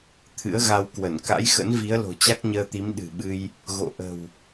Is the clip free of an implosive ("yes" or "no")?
no